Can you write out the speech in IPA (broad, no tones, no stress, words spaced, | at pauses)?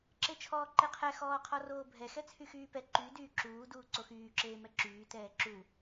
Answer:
ǁet͡ʃʰɔːǃeqʰɛ xɔːqʰɔroːbʱɛ xɛt͡sʰyxyːpɛ ǃy dyːǁuː duːǀoxyː ǁeːmɛǁyː tɛːǁu